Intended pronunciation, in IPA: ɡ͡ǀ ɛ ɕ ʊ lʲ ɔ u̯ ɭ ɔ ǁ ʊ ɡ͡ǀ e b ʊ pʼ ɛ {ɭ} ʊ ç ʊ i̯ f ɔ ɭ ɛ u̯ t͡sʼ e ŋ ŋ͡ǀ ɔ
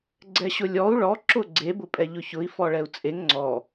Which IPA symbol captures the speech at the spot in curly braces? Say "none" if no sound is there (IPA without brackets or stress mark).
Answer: ʎ